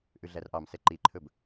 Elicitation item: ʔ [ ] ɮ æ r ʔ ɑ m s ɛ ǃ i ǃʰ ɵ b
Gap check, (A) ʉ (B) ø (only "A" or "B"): A